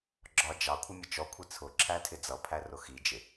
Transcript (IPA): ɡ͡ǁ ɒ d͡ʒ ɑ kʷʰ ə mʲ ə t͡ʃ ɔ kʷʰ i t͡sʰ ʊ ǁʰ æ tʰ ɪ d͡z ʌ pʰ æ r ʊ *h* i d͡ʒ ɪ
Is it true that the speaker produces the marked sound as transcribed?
no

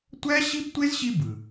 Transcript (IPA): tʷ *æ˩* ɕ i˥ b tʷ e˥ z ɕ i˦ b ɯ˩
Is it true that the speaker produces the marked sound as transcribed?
no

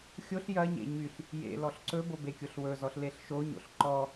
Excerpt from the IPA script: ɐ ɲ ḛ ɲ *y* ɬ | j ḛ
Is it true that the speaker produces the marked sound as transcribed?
yes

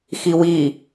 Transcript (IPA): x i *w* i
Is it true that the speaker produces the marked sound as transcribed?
yes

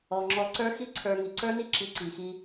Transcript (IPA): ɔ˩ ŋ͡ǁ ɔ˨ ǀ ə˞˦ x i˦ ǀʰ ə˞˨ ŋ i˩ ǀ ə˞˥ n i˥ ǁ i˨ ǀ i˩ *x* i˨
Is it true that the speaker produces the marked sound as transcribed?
yes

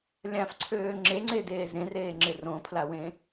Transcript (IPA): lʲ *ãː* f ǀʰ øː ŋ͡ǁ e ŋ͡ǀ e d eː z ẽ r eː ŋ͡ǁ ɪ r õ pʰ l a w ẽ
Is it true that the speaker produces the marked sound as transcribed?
no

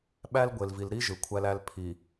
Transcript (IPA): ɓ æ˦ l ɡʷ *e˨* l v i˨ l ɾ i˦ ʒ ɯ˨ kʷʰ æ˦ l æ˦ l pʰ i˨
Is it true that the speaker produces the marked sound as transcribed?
yes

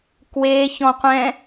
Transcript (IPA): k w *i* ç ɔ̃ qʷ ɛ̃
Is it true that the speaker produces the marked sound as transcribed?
no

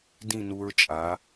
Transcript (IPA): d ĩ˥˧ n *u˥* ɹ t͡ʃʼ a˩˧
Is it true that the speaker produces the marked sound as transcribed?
no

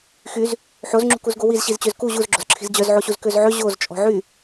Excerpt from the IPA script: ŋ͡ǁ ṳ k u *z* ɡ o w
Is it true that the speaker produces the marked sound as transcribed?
yes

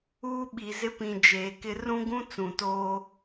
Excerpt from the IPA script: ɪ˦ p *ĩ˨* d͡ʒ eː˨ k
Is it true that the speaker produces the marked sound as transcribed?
yes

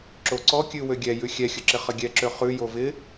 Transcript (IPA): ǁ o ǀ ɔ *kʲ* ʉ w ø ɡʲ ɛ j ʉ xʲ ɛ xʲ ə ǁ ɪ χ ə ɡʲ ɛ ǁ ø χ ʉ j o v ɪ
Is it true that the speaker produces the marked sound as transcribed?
yes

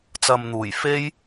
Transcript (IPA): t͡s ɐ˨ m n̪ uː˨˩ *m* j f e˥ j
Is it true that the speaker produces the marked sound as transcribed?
no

